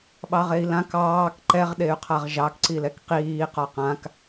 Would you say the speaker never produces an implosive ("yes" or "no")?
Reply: no